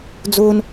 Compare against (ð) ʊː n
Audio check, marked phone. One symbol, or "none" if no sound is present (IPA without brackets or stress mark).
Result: d͡z